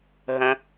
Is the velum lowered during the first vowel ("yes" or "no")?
yes